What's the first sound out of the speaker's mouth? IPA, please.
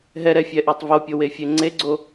ɦ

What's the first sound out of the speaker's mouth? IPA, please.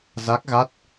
z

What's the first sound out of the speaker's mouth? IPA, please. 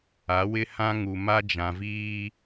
a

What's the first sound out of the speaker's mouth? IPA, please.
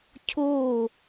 cʰ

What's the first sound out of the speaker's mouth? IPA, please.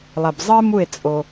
lˠ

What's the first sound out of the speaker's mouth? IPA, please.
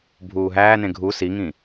bʱ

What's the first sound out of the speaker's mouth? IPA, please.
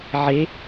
ʕ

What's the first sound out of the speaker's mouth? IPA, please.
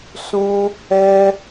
s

